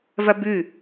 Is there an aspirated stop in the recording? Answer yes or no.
no